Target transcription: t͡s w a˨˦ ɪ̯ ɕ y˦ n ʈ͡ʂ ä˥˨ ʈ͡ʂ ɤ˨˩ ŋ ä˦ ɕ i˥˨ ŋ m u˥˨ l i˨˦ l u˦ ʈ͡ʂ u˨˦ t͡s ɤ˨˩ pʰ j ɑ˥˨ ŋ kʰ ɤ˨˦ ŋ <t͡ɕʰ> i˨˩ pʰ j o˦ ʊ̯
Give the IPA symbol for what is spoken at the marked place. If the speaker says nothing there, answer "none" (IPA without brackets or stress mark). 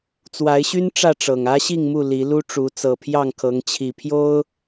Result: t͡ɕʰ